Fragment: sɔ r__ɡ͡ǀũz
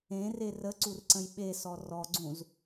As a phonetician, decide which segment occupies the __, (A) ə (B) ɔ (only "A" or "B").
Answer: B